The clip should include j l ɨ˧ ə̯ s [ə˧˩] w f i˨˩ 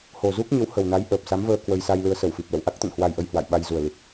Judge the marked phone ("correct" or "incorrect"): correct